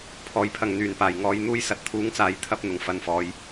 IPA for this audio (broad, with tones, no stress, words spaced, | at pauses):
pʰɔː˨˩jpʰɐ˨˩ŋ n̪yː˨˩npaː˨˩jŋɔː˨˧jn̪uː˧j sɐ˨˥t̚t̪ʰuː˨˥ŋt͡saː˨j t̪ʰɐ˨˥p̚ n̪ʊ˨˩ŋfɐ˧nfɔː˨˧j